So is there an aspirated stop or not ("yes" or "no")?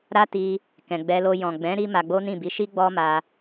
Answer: no